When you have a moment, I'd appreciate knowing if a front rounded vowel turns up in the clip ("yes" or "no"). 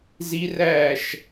no